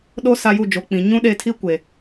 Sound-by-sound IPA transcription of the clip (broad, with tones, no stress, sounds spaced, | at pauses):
ɗ o˦ s a˦ j u˦˨ d͡ʒ o˨ k͡p ĩ˨ ɲ ũ˦ ɗ e˦˨ tʰ i˦ kʷ e˨